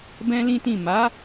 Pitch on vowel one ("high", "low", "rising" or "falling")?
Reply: high